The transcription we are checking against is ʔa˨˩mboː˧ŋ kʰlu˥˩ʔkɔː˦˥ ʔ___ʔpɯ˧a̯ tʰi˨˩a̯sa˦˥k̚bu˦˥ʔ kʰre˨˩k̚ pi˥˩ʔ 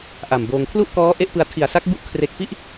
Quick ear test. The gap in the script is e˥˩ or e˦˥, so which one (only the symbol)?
e˥˩